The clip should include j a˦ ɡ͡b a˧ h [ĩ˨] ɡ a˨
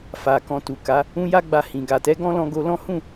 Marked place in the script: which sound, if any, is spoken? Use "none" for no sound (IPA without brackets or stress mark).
ĩ˨